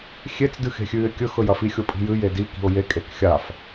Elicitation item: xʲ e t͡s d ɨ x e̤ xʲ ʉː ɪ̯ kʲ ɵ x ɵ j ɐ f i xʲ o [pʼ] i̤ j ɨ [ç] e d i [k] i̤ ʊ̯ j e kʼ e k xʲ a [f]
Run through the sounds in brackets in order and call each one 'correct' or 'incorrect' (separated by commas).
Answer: correct, incorrect, correct, correct